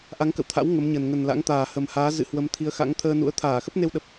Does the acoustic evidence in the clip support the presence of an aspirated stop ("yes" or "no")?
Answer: yes